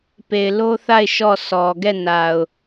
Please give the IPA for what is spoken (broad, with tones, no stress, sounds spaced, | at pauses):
p e˨ ɪ̯ l o˦ θ a˦˨ ɪ̯ ʃ ɔ˦˨ s ɔ˨ ɡ ɛ˦˨ n a˨ ʊ̯